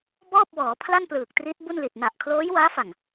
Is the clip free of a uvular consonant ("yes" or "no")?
yes